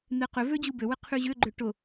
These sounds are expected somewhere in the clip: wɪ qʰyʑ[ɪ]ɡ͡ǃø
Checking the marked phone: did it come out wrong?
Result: yes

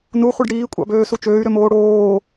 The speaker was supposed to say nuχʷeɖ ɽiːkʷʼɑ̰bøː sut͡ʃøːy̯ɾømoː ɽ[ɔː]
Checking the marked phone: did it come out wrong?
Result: yes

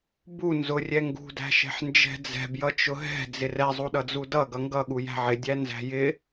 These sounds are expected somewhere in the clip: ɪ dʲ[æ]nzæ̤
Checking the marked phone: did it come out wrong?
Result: no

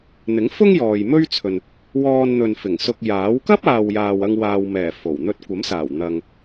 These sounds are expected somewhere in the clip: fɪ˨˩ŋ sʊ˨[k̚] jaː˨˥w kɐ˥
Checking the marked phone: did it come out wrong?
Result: no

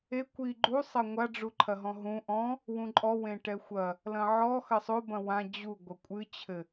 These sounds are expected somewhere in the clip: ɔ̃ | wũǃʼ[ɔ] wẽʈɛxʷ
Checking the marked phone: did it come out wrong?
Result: no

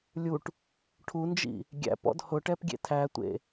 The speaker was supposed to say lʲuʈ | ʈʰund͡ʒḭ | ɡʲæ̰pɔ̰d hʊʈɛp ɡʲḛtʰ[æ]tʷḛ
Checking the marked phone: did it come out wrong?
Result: no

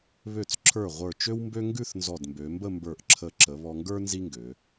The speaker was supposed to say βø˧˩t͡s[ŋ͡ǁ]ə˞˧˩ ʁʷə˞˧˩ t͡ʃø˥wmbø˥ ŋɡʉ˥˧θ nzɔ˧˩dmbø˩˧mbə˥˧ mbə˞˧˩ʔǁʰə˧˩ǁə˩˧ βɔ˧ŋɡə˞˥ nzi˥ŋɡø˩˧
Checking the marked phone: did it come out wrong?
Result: yes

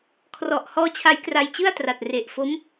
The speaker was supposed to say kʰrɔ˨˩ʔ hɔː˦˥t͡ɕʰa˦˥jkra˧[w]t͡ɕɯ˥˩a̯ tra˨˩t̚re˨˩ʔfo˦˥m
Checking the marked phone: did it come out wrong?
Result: yes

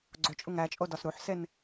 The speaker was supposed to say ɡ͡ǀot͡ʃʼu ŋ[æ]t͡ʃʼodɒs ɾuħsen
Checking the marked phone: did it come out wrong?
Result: no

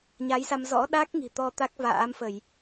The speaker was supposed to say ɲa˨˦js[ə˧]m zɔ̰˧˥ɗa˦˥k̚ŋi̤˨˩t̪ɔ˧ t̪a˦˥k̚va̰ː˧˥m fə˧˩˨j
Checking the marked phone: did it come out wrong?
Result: yes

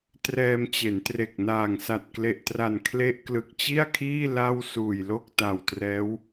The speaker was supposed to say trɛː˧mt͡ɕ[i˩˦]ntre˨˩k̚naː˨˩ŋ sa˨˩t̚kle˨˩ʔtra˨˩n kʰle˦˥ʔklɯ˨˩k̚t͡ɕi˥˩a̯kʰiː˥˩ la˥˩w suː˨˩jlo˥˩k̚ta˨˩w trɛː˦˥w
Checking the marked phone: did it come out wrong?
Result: yes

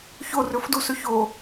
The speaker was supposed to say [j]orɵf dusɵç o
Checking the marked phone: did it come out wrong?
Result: yes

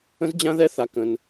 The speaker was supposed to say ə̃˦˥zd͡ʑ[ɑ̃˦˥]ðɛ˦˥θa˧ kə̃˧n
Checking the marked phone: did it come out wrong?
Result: yes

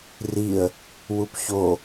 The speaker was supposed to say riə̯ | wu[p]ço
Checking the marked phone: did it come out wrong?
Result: no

